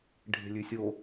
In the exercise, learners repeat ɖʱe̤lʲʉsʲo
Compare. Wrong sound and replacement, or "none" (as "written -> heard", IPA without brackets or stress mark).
none